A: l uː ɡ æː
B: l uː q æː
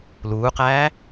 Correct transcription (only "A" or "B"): B